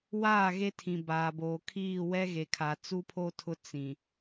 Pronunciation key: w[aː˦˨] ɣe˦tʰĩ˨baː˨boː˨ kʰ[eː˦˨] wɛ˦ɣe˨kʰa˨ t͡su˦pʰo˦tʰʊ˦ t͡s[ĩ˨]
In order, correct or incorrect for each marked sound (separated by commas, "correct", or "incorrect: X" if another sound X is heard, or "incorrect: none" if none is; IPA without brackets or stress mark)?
correct, incorrect: iː˦˨, correct